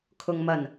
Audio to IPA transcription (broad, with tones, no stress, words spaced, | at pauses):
kʰʊ˨ŋmɐ˨˩n